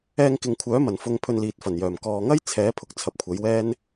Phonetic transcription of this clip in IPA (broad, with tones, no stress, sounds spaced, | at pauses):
ɛː˧ ŋ k ɪ˨ ŋ kʷʰ œː˨˥ m ɐ˨˩ n f ʊ˧ ŋ pʰ ɵ˧ n l iː˨ t̚ f ɐ˨˩ n j œː˨˩ m k ɔː˨ ŋ ɐ˥ j t͡sʰ ɛː˨˥ pʰ ʊ˨ k̚ t͡sʰ ɐ˨ p̚ kʷʰ ɐ˨˥ j w ɛː˥ n